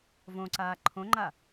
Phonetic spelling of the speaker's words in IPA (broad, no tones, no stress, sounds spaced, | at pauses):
v õ ǀ aː ǃʰ õ ŋ͡ǃ a